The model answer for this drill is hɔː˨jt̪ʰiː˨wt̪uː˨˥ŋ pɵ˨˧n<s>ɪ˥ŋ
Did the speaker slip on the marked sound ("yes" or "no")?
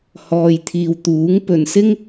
no